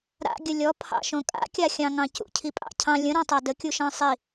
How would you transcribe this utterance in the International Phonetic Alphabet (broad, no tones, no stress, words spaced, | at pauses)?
ɾa̰ɡʲə lʲɔpʰɑ̰ʃõ kʼa̰kʲaxʲɑ̃ ŋɑ̃cṵ cʰipʼɑ̰cʰɑ̃ lʲə̃ ɾɔ̃tˤa dəkʲuʃɑ̃ sˤi